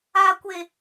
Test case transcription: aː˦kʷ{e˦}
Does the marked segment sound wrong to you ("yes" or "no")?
no